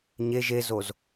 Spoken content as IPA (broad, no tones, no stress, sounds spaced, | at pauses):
ɲ e ʒ e z o z